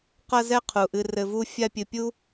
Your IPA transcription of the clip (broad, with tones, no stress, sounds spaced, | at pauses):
q ɐ˦ z ɛ˦ qʰ u˩ ʔ ɨ˨ r ɘ˨ v u˦ fʲ a˦ pʲ ɨ˨ pʲ u˥